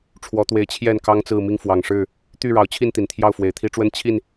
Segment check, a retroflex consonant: present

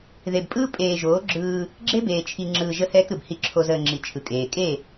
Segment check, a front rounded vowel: absent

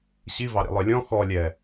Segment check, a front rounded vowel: present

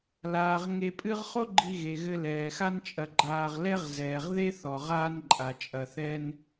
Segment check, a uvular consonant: present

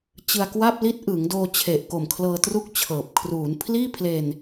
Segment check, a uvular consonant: absent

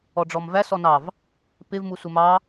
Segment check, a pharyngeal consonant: absent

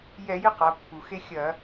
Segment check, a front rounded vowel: absent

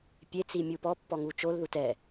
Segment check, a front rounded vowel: absent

